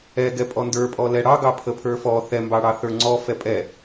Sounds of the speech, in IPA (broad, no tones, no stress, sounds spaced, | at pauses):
ɛ ɡ ɛ pʼ ɔ n d ə˞ pʼ ɔ l ɛ ɽ ɑ ɡ ɑ pʰ ə pʰ ə˞ f ɔ θ ɛ m b ɑ ɽ ɑ θ ə˞ ŋ͡ǀ ɔ f ɛ pʼ ɛ